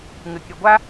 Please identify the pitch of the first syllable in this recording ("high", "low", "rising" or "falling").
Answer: low